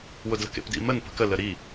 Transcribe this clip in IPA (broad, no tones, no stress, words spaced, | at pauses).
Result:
wʊdlə̤kḛpdḭ mən pə̤kə ləɾi